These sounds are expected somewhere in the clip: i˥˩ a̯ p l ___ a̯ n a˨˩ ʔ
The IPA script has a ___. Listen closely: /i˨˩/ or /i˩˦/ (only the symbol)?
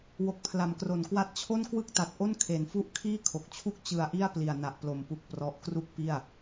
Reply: i˨˩